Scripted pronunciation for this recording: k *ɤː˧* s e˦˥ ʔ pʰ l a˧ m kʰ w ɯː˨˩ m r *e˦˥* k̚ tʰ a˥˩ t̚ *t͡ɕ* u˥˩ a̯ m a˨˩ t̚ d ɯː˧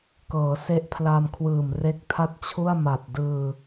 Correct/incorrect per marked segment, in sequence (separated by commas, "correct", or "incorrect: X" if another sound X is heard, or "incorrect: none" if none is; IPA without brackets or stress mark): incorrect: ɤː˩˦, correct, incorrect: t͡ɕʰ